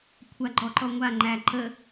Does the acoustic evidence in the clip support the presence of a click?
yes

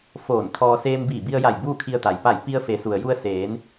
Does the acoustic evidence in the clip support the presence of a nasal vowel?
no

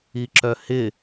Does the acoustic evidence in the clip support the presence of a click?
yes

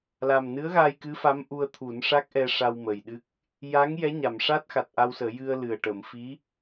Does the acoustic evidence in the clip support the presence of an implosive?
yes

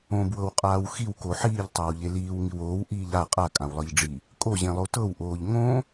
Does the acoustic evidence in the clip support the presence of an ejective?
yes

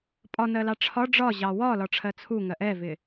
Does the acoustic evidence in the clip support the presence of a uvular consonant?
no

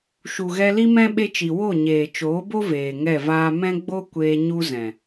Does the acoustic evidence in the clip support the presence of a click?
no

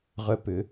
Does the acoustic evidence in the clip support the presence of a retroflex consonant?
no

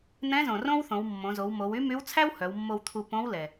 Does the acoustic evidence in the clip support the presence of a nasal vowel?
yes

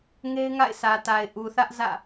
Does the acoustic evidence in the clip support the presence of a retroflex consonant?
no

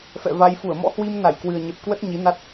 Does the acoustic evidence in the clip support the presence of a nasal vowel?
no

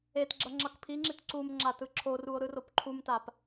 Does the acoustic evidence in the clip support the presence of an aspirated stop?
yes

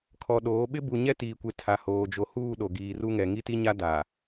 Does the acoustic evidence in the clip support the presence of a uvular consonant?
no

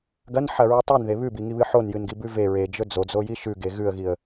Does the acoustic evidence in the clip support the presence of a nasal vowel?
no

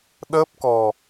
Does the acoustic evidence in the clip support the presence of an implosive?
yes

